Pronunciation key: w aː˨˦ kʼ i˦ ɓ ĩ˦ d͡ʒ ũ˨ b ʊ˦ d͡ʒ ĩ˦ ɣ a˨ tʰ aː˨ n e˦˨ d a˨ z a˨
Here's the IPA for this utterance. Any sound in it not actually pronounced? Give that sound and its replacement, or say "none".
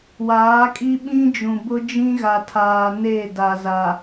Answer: none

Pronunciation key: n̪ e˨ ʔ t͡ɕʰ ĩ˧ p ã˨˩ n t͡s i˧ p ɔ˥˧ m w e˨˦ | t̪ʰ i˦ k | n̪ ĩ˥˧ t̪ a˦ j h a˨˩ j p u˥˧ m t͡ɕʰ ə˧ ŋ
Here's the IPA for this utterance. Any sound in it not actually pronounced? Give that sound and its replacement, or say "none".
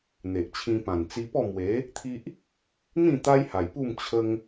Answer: k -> ʔ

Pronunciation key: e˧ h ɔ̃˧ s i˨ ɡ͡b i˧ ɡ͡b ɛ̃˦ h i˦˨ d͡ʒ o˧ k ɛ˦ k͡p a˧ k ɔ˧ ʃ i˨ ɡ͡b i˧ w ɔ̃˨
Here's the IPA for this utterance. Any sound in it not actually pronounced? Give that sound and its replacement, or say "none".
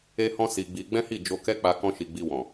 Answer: ɔ˧ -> ɔ̃˧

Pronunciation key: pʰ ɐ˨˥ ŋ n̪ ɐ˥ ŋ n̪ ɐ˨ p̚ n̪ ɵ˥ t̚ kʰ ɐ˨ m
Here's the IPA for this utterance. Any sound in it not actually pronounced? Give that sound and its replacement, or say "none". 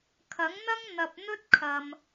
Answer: pʰ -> kʰ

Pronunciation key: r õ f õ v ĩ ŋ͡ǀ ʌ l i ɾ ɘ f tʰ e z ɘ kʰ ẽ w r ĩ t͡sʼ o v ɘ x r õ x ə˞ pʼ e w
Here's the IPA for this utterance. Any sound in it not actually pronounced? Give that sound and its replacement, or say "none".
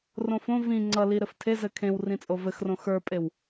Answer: none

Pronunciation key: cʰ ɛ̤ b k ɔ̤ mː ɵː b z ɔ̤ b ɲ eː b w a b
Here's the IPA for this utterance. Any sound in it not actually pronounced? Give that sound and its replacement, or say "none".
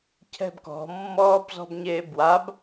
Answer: ɵː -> ɔː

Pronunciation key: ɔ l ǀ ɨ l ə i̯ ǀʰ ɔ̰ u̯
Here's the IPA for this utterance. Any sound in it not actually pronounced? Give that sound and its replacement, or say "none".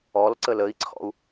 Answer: ɨ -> ə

